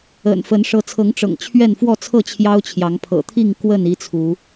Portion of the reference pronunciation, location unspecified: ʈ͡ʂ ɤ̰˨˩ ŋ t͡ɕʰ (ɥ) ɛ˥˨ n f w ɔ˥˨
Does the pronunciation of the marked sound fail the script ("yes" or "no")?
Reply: no